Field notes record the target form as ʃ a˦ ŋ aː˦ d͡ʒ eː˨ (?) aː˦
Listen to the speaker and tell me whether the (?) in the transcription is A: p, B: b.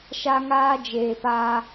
A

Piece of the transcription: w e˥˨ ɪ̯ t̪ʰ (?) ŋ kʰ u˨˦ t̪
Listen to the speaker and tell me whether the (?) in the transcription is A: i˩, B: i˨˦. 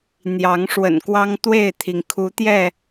A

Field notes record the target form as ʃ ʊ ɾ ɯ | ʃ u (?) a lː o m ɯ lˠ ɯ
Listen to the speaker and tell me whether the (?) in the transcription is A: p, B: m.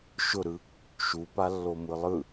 A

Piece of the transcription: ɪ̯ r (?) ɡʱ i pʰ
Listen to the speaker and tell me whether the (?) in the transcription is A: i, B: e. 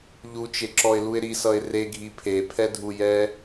B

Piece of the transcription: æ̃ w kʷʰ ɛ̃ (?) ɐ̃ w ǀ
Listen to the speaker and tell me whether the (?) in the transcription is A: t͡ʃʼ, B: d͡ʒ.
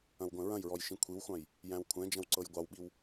B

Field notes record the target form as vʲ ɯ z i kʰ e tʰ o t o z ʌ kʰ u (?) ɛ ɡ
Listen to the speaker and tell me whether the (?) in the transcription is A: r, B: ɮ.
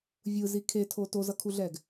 B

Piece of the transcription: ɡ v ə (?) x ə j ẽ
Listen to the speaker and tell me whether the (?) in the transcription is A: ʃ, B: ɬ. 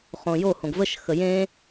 A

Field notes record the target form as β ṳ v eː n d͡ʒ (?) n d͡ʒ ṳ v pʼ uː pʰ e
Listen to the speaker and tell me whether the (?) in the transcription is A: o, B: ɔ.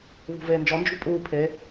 B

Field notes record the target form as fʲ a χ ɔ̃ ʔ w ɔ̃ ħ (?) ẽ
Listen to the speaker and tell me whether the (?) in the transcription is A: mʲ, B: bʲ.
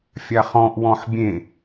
B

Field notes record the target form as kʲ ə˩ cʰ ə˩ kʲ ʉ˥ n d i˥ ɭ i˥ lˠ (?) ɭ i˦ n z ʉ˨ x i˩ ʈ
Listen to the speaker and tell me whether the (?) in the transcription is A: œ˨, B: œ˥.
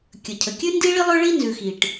B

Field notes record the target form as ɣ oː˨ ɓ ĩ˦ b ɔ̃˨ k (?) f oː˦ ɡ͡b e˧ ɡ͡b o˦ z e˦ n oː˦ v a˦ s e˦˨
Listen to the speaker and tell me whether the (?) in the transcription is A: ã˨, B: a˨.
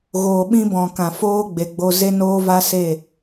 A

